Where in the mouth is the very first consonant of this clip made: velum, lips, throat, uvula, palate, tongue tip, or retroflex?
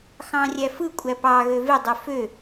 velum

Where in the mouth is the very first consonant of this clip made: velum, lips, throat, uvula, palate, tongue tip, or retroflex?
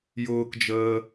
palate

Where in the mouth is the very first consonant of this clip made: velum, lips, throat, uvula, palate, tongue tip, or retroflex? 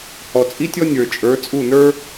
throat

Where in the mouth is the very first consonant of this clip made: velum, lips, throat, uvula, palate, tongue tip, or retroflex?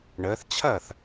retroflex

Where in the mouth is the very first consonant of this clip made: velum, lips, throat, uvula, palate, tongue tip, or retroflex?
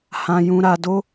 throat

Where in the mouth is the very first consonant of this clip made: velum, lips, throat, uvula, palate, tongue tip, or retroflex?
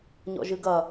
palate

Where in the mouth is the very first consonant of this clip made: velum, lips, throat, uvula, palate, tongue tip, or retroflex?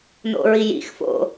tongue tip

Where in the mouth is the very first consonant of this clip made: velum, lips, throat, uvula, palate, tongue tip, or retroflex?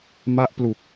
lips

